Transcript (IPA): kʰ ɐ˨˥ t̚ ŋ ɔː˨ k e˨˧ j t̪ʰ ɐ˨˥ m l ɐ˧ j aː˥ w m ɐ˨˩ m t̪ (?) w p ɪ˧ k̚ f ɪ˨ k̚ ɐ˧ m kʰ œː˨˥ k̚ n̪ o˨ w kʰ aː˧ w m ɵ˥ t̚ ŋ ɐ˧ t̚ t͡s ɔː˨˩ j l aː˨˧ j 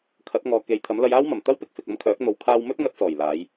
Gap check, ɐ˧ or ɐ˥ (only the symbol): ɐ˥